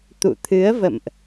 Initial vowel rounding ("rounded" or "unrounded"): rounded